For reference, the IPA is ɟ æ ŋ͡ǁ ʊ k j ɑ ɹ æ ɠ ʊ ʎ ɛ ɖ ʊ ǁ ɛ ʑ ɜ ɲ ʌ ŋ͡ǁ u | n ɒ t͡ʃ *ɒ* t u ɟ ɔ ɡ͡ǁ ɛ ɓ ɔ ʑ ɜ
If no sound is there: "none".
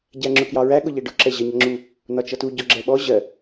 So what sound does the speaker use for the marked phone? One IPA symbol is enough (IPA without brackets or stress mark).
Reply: ʌ